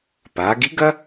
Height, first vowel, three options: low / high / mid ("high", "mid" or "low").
low